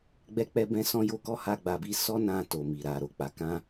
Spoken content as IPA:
ɡ͡b ɛ˧ k͡p ɛ˧ b ɛ̃˧ s ɔ̃˧ j o˦ k ɔ˦ h a˦ ɡ͡b a˧ b i˦ s ɔ˦ n ã˧ t o˨ m i˨ ɾ a˨ ɾ o˨ k͡p a˨˦ k ã˦

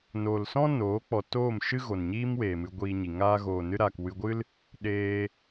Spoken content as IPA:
n oː˨ l s ɔ̃˦ n oː˨˦ k͡p ɔ˨ t oː˦˨ m ʃ ɨ˦ ɣ o˨ n ɲ iː˦ m w eː˨ m ɨ˧ ɡʷ iː˧ ɲ i˨ ŋ aː˦ ɣ oː˨ n ɨ˧ ɾ aː˨ k w ɨ˧ ɡʷ ɨ˦ l | ɗ eː˧

